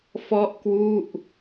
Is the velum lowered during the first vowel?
no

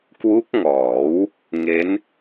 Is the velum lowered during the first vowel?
no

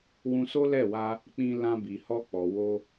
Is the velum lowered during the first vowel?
yes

